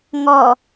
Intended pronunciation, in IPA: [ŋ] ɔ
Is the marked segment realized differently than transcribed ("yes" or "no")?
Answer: no